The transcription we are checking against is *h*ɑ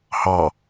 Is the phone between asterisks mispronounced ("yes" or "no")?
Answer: no